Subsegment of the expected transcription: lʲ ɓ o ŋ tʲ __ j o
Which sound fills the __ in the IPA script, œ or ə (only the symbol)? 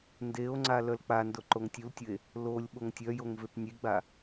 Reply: œ